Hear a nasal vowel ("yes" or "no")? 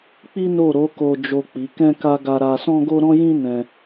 yes